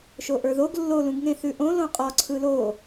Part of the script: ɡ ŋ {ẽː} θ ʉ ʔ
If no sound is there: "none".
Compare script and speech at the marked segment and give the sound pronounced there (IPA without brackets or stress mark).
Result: ẽ